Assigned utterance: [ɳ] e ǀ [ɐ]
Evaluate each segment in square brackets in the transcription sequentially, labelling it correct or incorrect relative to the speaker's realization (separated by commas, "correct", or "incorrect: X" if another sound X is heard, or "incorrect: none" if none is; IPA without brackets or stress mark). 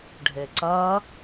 incorrect: ɖʱ, correct